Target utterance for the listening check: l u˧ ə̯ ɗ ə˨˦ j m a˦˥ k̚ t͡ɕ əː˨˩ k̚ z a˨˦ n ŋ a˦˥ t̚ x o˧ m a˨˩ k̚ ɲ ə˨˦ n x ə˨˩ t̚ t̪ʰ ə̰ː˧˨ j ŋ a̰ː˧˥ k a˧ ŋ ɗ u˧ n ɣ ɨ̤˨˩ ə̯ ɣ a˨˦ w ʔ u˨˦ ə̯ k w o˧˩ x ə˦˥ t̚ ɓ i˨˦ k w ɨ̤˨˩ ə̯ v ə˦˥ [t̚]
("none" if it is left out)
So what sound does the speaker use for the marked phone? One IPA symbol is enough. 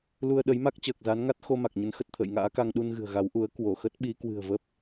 p̚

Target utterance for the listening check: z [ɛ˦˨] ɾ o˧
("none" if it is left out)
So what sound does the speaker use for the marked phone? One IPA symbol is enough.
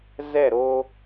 ɛ˦˨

